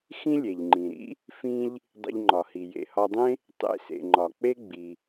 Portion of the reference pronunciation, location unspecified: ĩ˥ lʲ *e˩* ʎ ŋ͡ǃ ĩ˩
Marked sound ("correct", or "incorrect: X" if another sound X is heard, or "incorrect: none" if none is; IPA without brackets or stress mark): correct